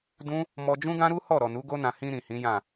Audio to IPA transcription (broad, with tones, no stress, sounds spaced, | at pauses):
d ũ˦ | m ɔ˧ d͡ʒ ũ˦ ɡ ã˦ ɾ u˦ h ɔ˦˨ ɾ ɔ˨ n u˨˦ ɡ o˦ n ã˧ h ĩ˧ ɾ ĩ˨ h ĩ˨˦ j ã˦˨